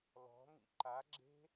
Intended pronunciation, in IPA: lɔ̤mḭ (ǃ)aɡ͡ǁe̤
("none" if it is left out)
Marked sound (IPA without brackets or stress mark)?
ǃ